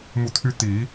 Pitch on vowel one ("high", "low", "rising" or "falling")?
falling